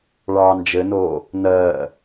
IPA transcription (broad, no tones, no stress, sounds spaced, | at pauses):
ɭ ɑː n d͡ʒ ɘ n oː | n ɜː